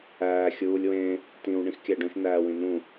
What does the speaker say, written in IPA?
æː xʲ uː lʲ w ẽ | t ĩ w ɳ ĩ x kʲ æ ɖ õ ʃ n æː w ĩ n ũ

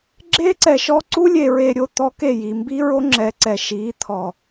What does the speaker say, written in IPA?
ɡ͡ǁ e˦ ǀ ɛ˨ ʃ ɔ˦ ǀ u˦ lʲ e˨ ɹ e˨ ɾʲ o˨ t̪ ɔ˨ k e˦˨ j i˨ m b i˦ ɹ o˦ ŋ͡ǁ ɛ˨ ǀ ɛ˨ ʃ i˨˦ t̪ʰ ɔ˨

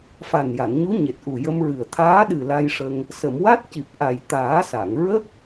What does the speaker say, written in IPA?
f a˨˩ n j a˨˩˨ n ɲ u˧˥ ɲ e˨˩ t̚ ʔ u˨˩ j ə˧ m ɹ ɨ˨˩ ə̯ t̪ʰ aː˧˥ ɗ ɨ˨˩ l a˧ j ʂ ə˧ ŋ | s ə˨˩˨ m w a˦˥ t̚ c i˨˩ p̚ ʔ a˨˩ j t̪ aː˨˩˦ s a˨˩˨ ŋ ɹ ə˦˥ k̚

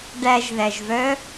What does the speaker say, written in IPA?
ɖ æ ʒ ð æ ʒ v œ

